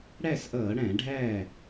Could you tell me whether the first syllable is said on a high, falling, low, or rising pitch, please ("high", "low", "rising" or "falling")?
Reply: falling